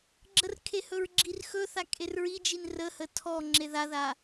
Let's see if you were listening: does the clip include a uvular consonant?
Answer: no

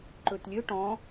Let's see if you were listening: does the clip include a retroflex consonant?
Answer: yes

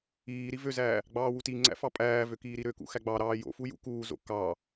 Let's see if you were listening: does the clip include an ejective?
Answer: yes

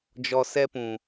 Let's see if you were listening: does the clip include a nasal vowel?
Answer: yes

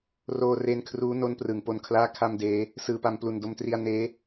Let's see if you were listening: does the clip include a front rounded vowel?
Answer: no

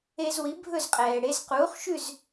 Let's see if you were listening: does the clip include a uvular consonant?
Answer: yes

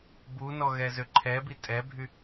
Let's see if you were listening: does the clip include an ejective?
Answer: yes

